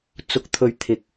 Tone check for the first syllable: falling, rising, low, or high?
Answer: low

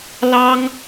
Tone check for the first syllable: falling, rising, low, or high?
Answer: high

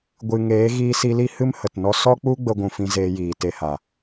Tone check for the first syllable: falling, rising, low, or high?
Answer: low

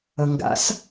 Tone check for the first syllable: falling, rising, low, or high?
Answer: low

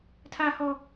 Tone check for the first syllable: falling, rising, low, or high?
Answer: high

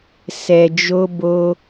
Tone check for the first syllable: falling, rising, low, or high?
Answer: low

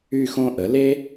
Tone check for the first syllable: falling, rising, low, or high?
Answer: falling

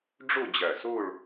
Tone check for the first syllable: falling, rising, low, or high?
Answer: falling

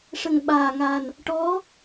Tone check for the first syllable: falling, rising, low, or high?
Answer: low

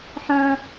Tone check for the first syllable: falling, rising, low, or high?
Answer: low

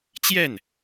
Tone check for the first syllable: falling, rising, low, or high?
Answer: falling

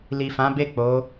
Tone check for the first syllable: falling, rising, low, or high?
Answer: low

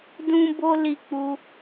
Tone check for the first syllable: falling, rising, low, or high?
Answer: high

